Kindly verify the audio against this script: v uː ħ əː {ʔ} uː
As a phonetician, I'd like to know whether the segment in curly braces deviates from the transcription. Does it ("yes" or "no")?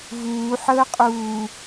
yes